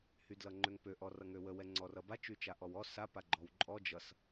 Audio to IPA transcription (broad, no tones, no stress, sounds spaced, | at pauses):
h y d l ʌ ŋ͡ǃ ø ŋ p ø ʔ ɔ r ʌ ŋ ø w ə w ɛ ŋ͡ǀ ɔ r ʌ b a t͡ʃ y t͡ʃ a ʔ ɔ w ɔ s a p a ɡ͡ǃ ɔ w ǃʼ ɔ d͡ʒ ʌ s